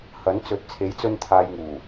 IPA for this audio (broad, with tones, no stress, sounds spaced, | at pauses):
h ɐ˨˥ n t͡s ɵ˨˥ t̚ t͡sʰ e˨˥ j t͡s ɵ˧ n t̪ʰ aː˨ j ŋ uː˨˩